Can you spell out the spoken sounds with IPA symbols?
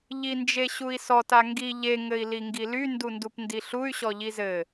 ʎ i n d͡ʒ e ɕ u i̯ s ɔ t a ŋ ɡ i ʎ e ŋ ɘ i̯ l i ŋ ɡ i l y n d u n d u p n d i ɬ u y̯ ɕ ɔ ʎ i z ɘ

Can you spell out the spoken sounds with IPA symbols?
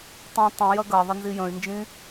tˤ ĩ tˤ ĩ j ɐ ɡ ɐ ðˤ ɐ n z i j ə̃ y̯ n d͡ʒ ĩ

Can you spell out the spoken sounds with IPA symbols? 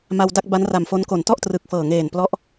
m a˧ w d a˥˩ k̚ b a˦˥ n r a˨˩ m f o˦˥ n k o˩˦ n t ɔ˥˩ ʔ t r ɯ˨˩ k̚ f ɤː˨˩ ŋ eː˨˩ n p l ɔ˦˥ ʔ

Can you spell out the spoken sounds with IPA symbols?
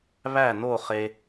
β æ˥˩ n o˥˩ χ e˧

